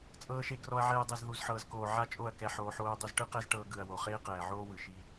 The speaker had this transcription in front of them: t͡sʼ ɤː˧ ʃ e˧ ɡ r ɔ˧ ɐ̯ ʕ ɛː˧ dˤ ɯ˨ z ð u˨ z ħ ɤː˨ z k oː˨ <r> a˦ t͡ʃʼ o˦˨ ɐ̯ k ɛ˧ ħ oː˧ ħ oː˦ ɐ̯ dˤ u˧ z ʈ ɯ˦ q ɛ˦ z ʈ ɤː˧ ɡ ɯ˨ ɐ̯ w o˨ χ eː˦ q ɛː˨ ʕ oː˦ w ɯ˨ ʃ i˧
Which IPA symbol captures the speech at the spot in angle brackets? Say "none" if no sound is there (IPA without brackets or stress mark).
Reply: ʕ